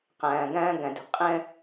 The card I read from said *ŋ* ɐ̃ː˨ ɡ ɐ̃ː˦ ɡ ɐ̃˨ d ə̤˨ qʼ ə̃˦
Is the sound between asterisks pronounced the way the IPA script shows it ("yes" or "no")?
no